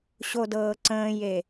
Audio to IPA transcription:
ɕ o d ɤː ǀ ə̃ː j e

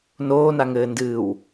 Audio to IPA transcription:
n oː n a ŋ ɘː n d ɨː w

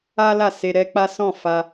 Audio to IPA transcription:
a˦ l a˦˨ s e˧ ɾ ɛ˦ k͡p a˦ s ɔ̃˦˨ f a˧

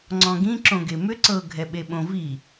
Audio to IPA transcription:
ŋ͡ǀ ɔ̃ ɡ ĩ ǁ õ ɡ e m ʏ ǀ ɤ ɡʱ ɛ ɓ e ɓ õ v i

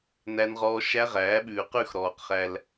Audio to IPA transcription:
n æ˦ n ʁ ɔː˦ ʃ æ˦ ʁ æː˨˦ ɓ ʉː˨ q ʉ˦˨ x ɾ ɔː˨ q χ æ˧ l

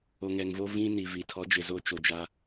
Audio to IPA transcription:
o˨ ŋ ɛ˨ ŋ v o˦ v ĩ˦ n i˨ v i˨ tʰ ɔ˨˦ d͡ʒ ɪ˨ z o˦˨ t͡ʃ o˦ d͡ʒ a˦

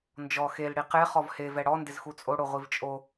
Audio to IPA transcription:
n d͡ʒ ɔ x e l ɽ i q e χ ɔ v h e v ɛ ɽ ɔ n d ɪ z x u t͡sʼ o ɽ o ʁʷ i v t͡ʃʼ o

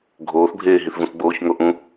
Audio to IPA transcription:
ɡʱ oː θ bʱ eː ɦ i θ v ũ θ ɡ͡b oː ç ŋ o ʔ ũ

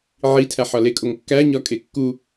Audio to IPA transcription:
ʕ i tʰ æ ħ ɒ l e kʼ o ŋ kː æ ɲ ɒ kʼ e kː u

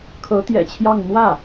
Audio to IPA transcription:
kʰ ɤ˧˥ t̪ j ɛ̰˨˩ t͡ɕʰ j ɑ˥˧ ŋ n̪ w ä˥˩

